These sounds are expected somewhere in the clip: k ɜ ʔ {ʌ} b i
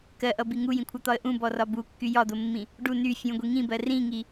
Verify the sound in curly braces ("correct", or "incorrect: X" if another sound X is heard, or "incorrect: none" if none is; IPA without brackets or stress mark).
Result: correct